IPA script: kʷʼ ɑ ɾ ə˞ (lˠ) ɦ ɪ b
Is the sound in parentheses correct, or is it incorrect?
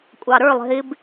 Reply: correct